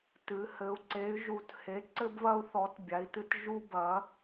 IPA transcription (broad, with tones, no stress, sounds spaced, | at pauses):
t ɨ˧˥ h ɘ˧˥ u̯ ǀ e˧˥ y̯ ʒ u˧˥ t h e˧˥ ǀ ɘ˥ b β ɐ˥ u̯ θ ɔ˧˥ t bʲ a˧˥ i̯ t ɨ˥ t ʒ u˥ b ɐ˧˥